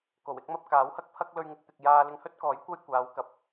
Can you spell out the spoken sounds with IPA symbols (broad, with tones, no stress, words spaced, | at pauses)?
ko˨˩wɪ˥k̚ mɐ˧p̚ kaː˨˥whɐ˥k̚pʰɐ˥k̚ lɵ˧ɥŋɪ˧k̚t̪ɪ˨k̚ jaː˧lɪ˧ŋhɵ˥t̚kɔː˨˥j kʷɐ˥j kʷaː˨˧wkɐ˨p̚